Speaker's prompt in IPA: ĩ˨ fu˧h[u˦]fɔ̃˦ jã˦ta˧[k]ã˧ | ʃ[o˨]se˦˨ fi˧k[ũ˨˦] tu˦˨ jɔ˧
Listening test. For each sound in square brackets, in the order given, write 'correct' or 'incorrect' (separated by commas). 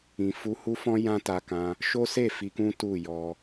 correct, correct, incorrect, incorrect